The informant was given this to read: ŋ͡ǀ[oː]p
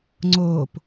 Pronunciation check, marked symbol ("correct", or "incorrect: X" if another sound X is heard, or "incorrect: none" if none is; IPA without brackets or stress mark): correct